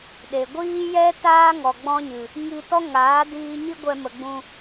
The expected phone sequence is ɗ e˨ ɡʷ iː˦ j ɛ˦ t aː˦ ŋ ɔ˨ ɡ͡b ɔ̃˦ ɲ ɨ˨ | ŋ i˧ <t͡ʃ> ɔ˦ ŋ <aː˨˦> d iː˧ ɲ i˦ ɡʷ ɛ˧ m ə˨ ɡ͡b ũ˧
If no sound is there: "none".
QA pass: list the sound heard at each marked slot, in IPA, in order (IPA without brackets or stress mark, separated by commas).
t, aː˨˦